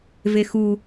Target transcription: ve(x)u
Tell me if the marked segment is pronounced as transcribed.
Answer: yes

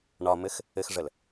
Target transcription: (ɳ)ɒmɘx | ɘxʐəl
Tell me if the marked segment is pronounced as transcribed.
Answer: yes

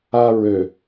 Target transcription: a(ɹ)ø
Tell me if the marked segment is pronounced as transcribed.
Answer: yes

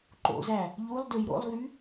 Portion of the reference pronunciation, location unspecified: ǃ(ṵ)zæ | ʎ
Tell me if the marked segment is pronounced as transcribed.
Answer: no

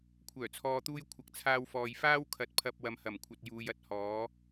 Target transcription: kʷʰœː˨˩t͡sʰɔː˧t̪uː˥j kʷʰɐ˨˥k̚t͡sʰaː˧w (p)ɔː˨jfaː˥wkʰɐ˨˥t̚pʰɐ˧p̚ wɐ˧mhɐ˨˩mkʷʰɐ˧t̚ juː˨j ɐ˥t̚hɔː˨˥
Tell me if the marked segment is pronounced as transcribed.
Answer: no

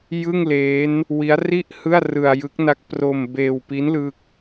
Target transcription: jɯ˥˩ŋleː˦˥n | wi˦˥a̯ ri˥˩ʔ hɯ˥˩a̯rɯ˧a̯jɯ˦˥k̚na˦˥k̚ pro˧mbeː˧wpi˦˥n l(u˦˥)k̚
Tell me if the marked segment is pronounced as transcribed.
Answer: no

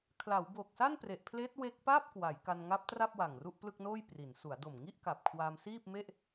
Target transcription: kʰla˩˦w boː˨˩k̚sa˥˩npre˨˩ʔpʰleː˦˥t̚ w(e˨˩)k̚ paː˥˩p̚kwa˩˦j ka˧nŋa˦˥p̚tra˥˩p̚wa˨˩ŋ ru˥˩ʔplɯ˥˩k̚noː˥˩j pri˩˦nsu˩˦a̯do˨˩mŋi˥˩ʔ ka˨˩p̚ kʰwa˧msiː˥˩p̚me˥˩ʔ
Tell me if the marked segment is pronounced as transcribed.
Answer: no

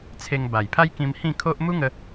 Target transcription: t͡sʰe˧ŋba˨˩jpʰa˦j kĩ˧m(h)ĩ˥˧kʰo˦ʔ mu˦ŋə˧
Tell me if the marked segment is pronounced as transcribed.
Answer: yes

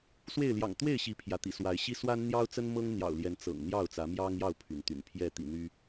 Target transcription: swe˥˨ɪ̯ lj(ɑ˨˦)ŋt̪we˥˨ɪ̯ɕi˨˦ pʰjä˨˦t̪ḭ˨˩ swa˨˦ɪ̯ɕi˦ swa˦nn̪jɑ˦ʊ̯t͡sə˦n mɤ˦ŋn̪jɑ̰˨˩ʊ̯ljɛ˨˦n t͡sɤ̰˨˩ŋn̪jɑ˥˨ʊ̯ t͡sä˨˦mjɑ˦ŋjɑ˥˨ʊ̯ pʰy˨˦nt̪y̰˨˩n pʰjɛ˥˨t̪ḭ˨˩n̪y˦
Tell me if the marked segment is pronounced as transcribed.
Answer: no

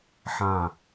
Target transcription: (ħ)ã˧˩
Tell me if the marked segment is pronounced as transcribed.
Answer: yes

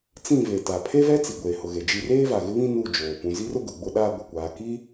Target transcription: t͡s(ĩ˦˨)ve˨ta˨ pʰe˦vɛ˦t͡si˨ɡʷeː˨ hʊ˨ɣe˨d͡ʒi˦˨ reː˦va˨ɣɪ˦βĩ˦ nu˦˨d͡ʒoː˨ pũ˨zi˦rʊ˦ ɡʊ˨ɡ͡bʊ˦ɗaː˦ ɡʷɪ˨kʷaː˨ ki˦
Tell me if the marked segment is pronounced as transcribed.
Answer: yes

